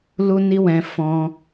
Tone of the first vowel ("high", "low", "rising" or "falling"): high